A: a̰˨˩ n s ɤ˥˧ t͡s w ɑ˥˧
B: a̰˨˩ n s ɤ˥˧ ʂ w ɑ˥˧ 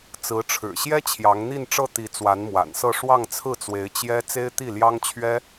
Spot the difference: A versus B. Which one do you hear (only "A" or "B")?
B